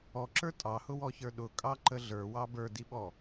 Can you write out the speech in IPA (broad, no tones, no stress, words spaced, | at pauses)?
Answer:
ɔǁə˞ tʼɑhʊwɔçə˞ ɗʊkʼɑǃə ɮə˞wɑ bə˞diɓɔ